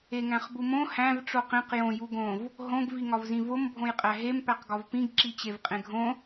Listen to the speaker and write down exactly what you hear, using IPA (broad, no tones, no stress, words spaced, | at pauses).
eŋæ̃χbumõ hæ̃v ʈ͡ʂoqẽq jõ juɡõv | ɦõɡ viŋɒvzĩvom bʱõjqʼæɦem pæqɡɒvpĩɡ ǁit͡ɕevqʼẽɡʱõ